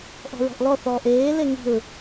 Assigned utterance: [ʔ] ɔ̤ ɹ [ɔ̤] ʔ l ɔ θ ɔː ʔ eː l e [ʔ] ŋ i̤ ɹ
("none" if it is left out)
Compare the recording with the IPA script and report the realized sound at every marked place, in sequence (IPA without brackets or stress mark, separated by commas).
ʔ, ɔ̤, none